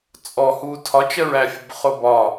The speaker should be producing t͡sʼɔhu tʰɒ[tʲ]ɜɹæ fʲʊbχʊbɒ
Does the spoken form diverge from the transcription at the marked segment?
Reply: yes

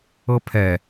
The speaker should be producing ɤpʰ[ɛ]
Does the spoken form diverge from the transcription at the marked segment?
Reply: no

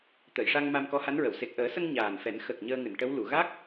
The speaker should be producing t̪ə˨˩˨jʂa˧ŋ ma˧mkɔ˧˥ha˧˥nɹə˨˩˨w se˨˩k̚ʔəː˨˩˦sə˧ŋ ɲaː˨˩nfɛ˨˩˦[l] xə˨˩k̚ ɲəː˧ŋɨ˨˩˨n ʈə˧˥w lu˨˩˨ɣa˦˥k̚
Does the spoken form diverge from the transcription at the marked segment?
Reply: yes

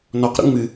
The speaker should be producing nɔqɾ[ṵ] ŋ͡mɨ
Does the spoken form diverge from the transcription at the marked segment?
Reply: no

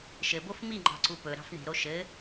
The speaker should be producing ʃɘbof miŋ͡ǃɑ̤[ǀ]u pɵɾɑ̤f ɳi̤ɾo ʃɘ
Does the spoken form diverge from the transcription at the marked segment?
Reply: no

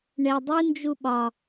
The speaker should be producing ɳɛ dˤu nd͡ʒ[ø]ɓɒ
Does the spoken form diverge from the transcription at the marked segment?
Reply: yes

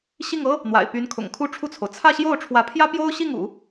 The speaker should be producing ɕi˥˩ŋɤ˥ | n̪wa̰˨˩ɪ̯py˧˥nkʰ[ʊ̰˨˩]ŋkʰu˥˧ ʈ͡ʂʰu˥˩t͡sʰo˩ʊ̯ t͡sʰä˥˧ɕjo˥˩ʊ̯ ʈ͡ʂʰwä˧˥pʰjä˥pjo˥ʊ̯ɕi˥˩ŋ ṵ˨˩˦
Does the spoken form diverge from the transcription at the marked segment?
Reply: no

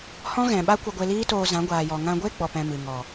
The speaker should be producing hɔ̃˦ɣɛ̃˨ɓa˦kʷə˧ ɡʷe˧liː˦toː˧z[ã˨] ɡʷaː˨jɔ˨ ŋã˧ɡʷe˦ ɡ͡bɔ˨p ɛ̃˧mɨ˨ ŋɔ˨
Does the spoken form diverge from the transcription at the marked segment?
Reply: yes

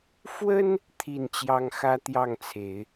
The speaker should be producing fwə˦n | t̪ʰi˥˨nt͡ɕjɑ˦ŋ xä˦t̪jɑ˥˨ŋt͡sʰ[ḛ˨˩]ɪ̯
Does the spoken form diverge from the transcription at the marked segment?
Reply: yes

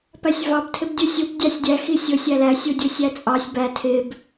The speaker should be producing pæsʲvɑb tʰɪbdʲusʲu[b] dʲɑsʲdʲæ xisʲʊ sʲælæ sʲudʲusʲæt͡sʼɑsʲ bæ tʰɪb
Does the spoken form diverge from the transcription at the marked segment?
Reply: no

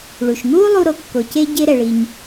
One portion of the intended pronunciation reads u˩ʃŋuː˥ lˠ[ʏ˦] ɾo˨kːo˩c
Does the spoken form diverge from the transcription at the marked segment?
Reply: yes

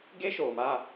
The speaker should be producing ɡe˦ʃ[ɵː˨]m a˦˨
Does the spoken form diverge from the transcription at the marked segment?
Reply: yes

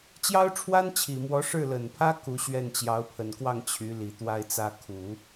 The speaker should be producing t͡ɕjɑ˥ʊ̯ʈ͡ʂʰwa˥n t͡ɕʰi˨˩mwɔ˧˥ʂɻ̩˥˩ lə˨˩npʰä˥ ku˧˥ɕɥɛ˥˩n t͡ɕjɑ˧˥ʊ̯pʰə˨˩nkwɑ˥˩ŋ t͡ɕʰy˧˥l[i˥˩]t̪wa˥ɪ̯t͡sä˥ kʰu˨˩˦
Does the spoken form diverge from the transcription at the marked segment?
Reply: yes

